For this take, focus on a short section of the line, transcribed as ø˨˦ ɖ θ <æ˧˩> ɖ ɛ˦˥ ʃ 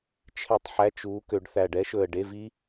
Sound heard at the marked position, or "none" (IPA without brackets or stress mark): æ˧˩